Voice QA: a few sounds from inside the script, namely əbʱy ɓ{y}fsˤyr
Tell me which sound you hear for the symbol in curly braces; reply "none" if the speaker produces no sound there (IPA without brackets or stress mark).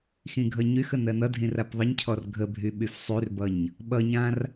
y